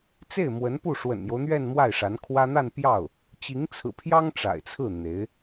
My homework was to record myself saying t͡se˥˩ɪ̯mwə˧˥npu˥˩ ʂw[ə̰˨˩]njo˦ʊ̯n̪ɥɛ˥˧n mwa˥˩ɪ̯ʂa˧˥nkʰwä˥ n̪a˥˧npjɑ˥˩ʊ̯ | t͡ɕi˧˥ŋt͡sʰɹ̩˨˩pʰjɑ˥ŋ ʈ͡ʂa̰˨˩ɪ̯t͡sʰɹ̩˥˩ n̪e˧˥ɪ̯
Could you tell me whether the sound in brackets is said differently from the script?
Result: no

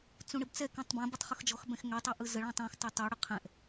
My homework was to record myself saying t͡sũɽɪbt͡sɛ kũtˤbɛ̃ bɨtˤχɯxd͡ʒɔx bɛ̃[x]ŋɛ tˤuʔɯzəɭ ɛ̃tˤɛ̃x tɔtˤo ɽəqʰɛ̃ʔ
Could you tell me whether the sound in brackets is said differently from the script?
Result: no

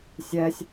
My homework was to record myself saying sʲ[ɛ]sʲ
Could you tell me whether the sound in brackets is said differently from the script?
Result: no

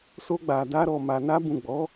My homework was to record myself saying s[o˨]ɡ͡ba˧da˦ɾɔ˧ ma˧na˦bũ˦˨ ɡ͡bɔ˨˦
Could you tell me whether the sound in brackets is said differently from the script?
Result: yes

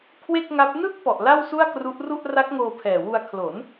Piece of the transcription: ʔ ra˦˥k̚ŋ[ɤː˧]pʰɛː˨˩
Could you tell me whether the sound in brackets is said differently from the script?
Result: yes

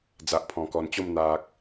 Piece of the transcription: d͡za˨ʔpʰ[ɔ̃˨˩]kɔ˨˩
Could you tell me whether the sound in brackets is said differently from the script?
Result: no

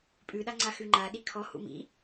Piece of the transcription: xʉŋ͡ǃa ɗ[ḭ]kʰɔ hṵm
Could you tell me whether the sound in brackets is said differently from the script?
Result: yes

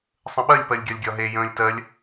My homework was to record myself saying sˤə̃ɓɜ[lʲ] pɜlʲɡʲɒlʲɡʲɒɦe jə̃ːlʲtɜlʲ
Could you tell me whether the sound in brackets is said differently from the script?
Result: no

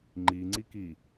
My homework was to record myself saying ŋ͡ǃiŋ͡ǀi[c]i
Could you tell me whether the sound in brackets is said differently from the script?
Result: yes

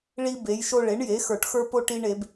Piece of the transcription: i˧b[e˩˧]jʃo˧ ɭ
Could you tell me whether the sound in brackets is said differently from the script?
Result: no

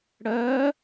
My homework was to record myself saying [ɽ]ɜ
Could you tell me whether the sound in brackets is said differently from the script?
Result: no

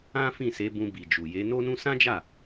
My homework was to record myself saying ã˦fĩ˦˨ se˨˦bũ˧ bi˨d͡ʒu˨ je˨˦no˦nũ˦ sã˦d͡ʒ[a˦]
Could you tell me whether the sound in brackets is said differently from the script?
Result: yes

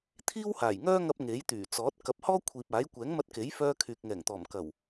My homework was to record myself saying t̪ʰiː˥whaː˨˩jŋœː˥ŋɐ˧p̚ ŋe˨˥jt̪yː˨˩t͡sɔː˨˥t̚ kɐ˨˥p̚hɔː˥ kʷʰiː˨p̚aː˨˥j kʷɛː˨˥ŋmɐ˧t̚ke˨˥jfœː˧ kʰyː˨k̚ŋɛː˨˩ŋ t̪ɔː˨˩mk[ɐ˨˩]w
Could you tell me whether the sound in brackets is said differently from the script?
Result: no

